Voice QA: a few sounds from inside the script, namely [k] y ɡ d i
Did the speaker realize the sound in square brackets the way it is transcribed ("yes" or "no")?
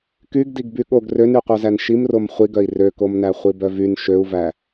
yes